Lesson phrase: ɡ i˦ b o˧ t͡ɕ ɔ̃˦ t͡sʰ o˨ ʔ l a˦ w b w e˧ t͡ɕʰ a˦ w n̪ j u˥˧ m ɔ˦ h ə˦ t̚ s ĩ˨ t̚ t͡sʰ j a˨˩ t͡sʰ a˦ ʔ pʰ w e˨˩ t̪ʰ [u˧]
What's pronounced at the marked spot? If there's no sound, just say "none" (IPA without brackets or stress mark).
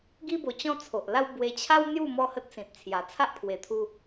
u˧